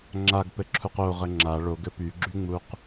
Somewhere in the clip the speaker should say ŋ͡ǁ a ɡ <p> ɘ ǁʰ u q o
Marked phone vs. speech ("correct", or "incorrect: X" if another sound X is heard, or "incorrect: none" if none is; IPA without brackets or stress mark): correct